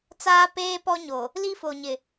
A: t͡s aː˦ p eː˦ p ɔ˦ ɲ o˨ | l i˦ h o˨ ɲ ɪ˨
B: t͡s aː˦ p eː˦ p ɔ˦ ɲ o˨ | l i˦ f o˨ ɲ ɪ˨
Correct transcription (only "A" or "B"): B